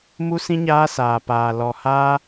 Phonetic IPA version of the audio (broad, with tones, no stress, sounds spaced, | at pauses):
m u˦ s ĩ˦ ɲ aː˦ s aː˧ p aː˧ l ɔ˧ h aː˦